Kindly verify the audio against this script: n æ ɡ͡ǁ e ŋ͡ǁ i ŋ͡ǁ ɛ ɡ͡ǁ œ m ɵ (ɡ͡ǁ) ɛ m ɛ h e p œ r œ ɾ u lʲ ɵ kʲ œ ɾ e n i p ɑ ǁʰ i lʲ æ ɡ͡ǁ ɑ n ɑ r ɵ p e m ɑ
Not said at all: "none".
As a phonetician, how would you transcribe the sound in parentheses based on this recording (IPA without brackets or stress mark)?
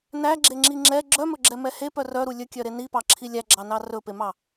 ɡ͡ǁ